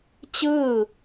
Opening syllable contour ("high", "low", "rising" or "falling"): falling